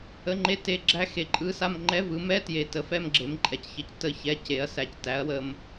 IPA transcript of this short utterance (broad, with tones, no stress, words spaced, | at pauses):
ə˧˥˧ŋ͡ǃe˧˥˧ te˧˥˧ɡ͡ǁæ˥˧ xe˨ǃʼɯ˧˥˧sa˥˧m ŋ͡ǃɛ˧˥˧vɯ˩˥mɛ˧˥˧tje˨ tə˩˥fɛ˥˧mɡ͡ǁe˩˥mǃʼɛ˩˥c çə˨c tə˥˧çɛ˧˥˧ce˩˥ɐ̯sæ˨c tæ˩˥ɐ̯wə˨m